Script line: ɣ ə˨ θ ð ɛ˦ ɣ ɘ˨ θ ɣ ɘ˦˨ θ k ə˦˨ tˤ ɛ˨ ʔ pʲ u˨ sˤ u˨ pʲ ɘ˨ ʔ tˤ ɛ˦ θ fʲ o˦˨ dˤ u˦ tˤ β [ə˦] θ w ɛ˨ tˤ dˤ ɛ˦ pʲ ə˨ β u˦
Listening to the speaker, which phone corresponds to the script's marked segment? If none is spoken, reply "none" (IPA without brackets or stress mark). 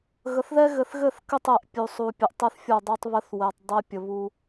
ə˦